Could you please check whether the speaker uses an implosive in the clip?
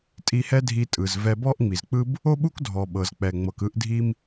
yes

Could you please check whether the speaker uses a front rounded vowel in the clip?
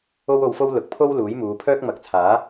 yes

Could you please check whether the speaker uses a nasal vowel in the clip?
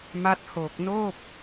no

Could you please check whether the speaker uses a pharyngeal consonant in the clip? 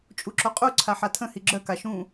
yes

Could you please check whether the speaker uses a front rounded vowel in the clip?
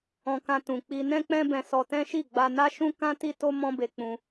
no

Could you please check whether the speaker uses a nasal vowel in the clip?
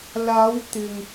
no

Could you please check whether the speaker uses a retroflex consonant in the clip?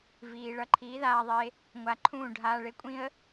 yes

